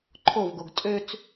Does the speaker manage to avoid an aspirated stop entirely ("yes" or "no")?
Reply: no